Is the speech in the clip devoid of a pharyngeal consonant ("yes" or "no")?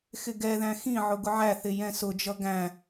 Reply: no